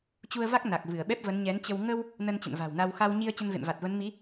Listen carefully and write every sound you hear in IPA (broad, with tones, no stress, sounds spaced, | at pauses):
t͡ɕ u˧ ə̯ v a˦˥ k̚ n a˨˩ k̚ v ɨ˧˩ ə̯ ɓ ɛ˦˥ p̚ v ə˨˦ n ɲ ɛ˨˦ n t͡ɕ ə˧ w ŋ ə˧ w | n ə˧ n t͡ɕ ə̰˧˨ n v a̤˨˩ w n a˧ w x a˧ w ɲ i˧ ə̯ t͡ɕ ə˧ n v ḛ˧˨ m v a˨˩ t̚ v ə˨˦ n m i˨˦